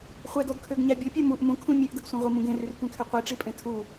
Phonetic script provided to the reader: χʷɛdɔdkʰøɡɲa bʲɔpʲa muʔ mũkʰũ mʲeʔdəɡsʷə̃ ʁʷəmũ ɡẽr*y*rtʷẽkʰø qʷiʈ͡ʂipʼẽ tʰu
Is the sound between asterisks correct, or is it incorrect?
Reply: correct